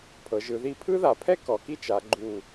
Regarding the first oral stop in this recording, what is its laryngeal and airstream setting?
aspirated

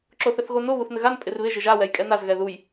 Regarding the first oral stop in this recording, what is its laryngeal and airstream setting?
click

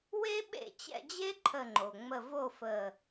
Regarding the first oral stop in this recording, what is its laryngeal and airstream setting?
implosive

